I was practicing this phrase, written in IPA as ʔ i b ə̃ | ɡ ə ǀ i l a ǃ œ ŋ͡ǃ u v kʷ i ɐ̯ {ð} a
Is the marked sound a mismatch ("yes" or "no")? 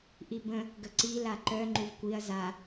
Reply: yes